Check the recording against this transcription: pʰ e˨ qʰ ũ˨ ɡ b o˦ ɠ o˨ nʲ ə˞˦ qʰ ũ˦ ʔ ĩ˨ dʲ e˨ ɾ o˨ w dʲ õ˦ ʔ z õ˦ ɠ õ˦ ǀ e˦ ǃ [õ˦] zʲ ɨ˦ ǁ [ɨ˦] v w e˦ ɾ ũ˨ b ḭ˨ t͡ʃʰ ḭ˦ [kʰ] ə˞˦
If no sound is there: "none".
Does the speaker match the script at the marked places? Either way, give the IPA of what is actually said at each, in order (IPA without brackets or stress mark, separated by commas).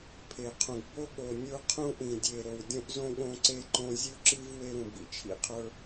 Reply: õ˦, ɨ˦, qʰ